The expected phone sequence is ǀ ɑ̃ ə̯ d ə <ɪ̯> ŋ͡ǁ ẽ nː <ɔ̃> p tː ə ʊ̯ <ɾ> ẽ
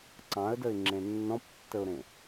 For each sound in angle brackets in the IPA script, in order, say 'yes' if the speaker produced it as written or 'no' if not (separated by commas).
yes, yes, yes